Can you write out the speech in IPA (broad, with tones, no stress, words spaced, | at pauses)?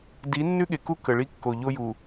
di˨˦nːʉ˦ ɠe˨ku˦ kə˨ɭi˦kːo˨ ʎo˦ju˨